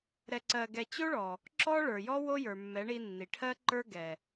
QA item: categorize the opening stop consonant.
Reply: click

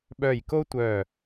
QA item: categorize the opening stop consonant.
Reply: implosive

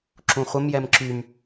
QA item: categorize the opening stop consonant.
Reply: click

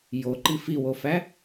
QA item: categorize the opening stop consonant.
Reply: click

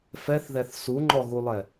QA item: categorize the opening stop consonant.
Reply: click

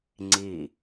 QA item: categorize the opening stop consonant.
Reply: click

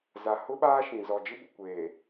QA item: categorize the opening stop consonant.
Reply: implosive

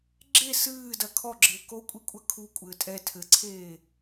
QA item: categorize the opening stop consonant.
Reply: click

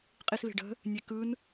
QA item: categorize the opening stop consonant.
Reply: ejective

